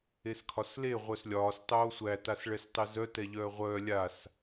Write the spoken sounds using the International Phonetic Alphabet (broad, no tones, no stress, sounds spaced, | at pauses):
e s kʰ ɒ s l e ʁʷ œ s lʲ ɒː s tˤ oː sʷ æ t a s ɭ ɛ s tˤ e z œ t ɛ ʎ œː ʁʷ œː lʲ a s